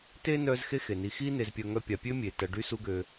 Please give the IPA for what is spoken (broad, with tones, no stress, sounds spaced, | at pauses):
t e˥ n œ˦ z x e˥ x e˩ n i˨ x i˥ n e˨ z pʲ œ˨ ŋ œ˦ pʲ a˩ pʲ ø˥ mʲ e˩ t ɐ˨ ɖ y˥ s u˦ ɡ ø˨